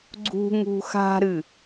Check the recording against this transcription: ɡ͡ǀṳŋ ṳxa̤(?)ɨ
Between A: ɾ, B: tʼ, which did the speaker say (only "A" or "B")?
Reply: A